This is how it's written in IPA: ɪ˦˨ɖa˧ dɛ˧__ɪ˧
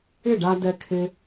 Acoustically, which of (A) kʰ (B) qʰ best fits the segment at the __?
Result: A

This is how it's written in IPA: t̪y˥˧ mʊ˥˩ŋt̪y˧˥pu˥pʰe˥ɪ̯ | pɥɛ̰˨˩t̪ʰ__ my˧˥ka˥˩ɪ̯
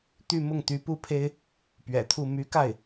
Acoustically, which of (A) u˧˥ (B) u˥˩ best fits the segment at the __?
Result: B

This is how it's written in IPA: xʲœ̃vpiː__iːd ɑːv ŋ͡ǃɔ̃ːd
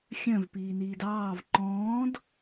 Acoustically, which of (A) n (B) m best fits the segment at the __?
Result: A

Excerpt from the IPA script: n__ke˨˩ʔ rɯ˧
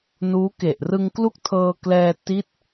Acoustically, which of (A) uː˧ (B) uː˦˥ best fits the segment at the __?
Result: B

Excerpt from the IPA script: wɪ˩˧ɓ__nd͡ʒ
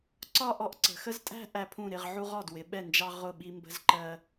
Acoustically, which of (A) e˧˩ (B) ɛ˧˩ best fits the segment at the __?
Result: B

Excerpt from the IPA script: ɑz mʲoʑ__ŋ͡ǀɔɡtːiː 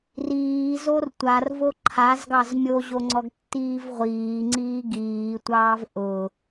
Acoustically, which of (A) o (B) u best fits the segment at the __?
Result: A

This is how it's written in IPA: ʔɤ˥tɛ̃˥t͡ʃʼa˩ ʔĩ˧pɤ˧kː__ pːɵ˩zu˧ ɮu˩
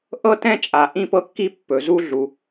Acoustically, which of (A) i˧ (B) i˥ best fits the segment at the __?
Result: A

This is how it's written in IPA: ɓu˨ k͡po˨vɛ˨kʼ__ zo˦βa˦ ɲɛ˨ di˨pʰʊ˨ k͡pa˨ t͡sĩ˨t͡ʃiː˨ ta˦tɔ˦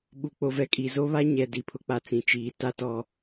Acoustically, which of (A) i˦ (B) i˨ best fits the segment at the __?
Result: B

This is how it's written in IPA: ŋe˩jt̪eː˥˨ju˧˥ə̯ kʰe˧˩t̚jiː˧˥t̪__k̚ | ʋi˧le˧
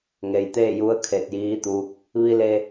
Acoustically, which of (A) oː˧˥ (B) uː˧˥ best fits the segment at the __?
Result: B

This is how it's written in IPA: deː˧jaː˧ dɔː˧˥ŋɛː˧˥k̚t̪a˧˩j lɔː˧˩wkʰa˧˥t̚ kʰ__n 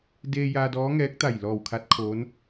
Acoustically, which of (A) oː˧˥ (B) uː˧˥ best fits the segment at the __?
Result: A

